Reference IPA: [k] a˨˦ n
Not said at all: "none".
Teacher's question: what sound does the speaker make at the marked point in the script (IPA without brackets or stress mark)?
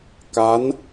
k